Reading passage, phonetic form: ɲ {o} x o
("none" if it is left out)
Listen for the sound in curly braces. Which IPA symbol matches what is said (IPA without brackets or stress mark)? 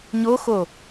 o